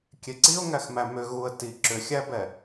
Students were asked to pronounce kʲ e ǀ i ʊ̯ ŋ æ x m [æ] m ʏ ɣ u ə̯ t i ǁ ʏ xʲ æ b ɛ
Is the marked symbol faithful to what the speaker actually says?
yes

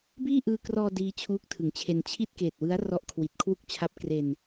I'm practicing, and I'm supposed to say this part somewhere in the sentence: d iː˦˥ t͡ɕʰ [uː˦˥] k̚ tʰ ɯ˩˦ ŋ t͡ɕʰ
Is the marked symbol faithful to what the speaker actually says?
yes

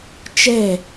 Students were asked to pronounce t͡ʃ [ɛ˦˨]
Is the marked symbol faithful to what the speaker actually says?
yes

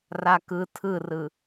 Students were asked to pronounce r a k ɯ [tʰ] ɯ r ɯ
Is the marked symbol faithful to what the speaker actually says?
yes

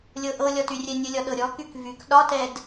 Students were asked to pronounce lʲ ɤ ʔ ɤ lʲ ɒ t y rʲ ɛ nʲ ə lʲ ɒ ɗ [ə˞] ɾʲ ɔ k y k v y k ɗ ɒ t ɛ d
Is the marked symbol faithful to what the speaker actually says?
no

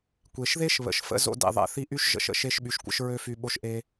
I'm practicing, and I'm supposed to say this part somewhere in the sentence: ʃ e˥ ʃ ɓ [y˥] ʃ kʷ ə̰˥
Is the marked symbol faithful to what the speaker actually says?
no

